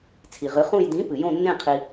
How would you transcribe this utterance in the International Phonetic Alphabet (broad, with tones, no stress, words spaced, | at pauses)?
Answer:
t͡sʰi˩ʁɨ˩˥χũ˦˨j dĩ˩˥ pɨ˩jõ˦˨nːẽ˦˨ qʰi˩